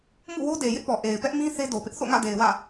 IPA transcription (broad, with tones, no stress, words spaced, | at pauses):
mṵ˦˨wo˦de˨ jɪ˦ʔpɔ˨ ʔe˨ɪ̯pɛ˦ʔmĩ˦ θe˦do˨pɪ˦ʔ θo̰˦˨ŋä̰˦˨de˨ɪ̯ wä̰˦˨